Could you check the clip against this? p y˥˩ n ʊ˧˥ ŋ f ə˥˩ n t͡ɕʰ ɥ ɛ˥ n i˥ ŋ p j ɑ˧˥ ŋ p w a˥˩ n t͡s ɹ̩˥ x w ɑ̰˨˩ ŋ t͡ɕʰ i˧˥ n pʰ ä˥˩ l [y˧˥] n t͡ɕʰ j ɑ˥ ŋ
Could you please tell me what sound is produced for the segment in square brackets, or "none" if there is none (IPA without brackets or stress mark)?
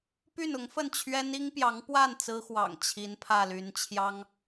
y˧˥